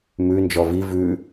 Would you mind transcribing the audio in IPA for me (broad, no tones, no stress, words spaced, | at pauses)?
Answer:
mʉ nd͡ʒɔvi vʉ